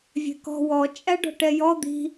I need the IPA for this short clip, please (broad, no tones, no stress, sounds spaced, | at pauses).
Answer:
vʲ e̤ k ɔ̤ w ɔ t͡ʃʼ æ ɖ ɔ̤ ʈ ɛ j ɔ d̪ i̤